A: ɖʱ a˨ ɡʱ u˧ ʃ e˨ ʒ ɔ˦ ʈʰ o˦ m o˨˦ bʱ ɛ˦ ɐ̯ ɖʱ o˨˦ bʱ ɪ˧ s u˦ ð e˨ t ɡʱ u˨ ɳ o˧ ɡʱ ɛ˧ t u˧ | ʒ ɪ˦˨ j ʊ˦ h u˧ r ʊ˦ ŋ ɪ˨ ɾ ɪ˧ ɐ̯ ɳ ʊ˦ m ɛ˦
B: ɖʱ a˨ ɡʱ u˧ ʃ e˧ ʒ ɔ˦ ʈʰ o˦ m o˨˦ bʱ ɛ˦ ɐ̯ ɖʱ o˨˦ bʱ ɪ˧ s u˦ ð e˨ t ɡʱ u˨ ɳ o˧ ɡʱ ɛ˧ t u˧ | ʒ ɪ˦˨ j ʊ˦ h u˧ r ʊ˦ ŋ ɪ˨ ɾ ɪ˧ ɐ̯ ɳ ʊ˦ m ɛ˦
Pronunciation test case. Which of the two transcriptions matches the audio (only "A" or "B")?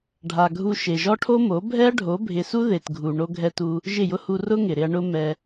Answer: A